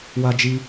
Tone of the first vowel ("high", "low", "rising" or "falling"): high